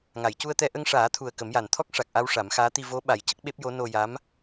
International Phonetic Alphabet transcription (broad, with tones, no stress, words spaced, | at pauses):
ŋa˨˩˨jcu˧ə̯t̪ɛ˧ ʔə˧ŋʂaː˨˩˦t̪ʰu˨˩ə̯ kə˨˩˦mja˨˩nt̪ʰɔ˦˥k̚ ʂa˨˩k̚ʔa˧w ʂa˨˩˦mxaː˧˥t̪i˧ vo˧˥ ɓa˨˩˦jcə˦˥k̚ɓe˦˥p̚jo˧˥ no˧ja˧˥m